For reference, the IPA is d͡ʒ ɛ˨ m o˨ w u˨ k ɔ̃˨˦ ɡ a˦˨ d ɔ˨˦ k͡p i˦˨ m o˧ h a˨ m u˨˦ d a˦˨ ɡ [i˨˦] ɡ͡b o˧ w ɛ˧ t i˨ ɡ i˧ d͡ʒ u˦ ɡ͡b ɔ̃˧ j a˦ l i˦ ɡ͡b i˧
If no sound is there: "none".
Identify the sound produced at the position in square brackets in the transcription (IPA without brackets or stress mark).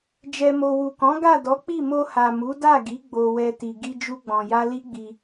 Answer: i˨˦